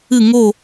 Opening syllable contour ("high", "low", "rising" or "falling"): falling